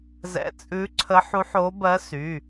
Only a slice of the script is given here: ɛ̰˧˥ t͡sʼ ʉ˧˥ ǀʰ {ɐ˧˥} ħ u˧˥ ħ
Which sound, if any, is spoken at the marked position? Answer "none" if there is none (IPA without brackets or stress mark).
ə˧˥